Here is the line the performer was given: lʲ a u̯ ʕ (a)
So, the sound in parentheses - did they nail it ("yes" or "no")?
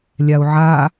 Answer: yes